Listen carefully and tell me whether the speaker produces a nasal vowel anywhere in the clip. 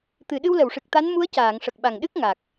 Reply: no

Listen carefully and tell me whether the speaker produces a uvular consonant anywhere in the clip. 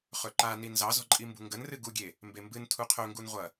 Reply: yes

